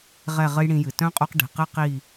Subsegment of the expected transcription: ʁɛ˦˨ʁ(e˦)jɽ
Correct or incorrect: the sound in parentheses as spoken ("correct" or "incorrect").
incorrect